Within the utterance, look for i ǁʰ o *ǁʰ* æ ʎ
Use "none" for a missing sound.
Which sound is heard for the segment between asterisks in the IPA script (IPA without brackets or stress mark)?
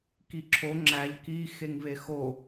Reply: ŋ͡ǁ